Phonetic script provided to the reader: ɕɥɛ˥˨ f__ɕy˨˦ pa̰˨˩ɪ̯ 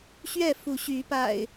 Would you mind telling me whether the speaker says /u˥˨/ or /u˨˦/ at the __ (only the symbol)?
u˨˦